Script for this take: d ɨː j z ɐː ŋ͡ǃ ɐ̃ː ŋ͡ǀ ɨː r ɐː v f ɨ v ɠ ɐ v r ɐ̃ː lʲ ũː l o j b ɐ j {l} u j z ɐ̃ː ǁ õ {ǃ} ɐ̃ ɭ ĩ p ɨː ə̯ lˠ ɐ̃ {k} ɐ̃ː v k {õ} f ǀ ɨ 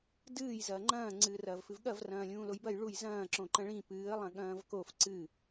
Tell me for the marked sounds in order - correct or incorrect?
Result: incorrect, correct, incorrect, incorrect

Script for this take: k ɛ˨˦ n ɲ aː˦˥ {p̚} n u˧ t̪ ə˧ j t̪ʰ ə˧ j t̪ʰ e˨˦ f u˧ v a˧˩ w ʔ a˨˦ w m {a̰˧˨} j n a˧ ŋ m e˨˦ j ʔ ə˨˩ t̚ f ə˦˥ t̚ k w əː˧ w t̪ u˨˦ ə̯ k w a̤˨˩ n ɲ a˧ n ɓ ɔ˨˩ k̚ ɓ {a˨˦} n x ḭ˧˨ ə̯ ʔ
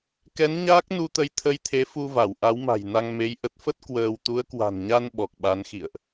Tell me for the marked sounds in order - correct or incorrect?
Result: incorrect, incorrect, correct

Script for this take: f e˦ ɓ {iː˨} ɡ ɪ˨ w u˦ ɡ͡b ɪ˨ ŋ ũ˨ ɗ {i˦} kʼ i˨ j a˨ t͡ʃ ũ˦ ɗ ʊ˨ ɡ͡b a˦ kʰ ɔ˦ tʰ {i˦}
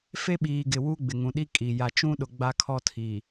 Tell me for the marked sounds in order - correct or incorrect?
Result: correct, correct, incorrect

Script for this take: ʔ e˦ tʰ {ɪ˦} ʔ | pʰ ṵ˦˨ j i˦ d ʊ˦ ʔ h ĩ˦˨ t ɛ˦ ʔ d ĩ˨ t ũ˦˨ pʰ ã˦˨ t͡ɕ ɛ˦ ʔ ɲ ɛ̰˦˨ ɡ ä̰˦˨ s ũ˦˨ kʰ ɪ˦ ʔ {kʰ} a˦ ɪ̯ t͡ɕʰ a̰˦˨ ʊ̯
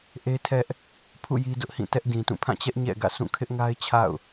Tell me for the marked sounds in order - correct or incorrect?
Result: incorrect, incorrect

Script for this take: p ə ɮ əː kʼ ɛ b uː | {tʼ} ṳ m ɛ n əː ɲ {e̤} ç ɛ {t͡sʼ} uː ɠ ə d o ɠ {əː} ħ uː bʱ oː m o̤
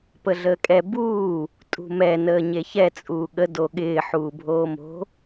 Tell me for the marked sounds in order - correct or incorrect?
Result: correct, incorrect, correct, incorrect

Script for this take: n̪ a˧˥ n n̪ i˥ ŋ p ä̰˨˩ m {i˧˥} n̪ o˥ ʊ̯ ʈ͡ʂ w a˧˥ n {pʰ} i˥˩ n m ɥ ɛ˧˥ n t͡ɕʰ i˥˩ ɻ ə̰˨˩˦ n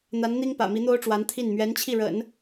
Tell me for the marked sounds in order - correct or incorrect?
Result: correct, incorrect

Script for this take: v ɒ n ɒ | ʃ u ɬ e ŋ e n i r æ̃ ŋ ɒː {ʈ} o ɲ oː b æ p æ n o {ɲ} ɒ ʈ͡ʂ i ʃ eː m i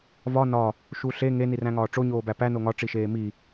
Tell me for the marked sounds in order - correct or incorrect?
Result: incorrect, incorrect

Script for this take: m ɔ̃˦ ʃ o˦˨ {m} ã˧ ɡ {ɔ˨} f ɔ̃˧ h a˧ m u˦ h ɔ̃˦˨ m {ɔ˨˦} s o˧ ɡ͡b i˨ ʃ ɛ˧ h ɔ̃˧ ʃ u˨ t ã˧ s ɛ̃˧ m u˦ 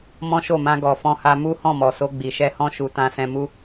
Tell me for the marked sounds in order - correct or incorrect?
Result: correct, correct, incorrect

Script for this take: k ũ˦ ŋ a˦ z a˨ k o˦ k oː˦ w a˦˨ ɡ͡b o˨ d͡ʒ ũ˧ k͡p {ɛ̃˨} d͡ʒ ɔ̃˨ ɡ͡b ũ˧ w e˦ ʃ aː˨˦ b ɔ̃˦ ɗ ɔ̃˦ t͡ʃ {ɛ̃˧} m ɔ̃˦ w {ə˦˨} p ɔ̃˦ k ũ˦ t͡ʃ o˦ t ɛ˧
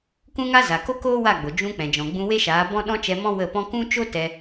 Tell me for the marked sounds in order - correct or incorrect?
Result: correct, incorrect, correct

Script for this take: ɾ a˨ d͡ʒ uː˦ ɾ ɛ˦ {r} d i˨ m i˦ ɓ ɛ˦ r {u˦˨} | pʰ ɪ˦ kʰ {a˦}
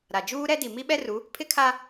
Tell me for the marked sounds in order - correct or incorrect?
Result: incorrect, incorrect, correct

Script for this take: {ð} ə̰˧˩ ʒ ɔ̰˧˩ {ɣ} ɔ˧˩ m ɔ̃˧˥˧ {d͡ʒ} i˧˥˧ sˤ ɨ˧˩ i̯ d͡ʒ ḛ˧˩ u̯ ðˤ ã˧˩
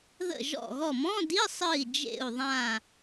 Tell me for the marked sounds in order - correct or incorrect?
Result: correct, correct, incorrect

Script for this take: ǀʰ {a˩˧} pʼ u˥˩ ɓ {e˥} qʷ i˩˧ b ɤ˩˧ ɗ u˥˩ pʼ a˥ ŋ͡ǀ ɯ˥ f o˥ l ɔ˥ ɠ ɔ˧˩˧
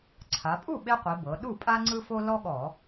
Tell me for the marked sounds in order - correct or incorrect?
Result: correct, correct

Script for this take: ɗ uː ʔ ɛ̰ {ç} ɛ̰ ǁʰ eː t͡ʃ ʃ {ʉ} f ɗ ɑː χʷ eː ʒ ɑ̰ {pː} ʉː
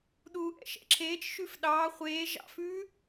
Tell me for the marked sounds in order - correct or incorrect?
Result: incorrect, correct, incorrect

